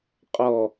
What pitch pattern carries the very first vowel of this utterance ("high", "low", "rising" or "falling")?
low